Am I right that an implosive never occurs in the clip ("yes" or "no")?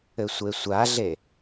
yes